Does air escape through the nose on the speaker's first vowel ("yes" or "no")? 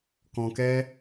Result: yes